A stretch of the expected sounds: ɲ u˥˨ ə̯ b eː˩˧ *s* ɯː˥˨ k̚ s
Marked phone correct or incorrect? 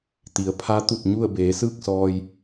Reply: correct